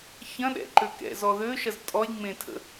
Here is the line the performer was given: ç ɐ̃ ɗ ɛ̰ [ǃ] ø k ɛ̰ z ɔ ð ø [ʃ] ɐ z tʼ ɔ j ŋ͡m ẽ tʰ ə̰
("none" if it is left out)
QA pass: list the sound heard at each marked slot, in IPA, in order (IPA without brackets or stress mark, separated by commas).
ǃ, ʃ